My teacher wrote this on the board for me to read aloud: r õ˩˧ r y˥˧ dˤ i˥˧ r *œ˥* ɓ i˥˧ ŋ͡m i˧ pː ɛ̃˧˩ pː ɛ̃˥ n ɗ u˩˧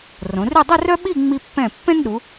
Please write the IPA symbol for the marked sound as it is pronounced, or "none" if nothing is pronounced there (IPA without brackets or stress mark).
œ˥